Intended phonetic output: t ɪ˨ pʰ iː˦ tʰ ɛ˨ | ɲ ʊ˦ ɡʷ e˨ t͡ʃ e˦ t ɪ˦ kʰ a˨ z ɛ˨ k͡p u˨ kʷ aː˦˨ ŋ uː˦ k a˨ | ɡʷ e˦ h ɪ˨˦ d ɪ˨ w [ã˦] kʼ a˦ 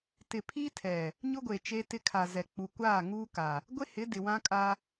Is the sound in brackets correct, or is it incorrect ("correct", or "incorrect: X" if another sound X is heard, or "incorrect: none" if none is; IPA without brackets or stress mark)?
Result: correct